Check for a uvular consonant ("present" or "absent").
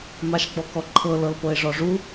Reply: absent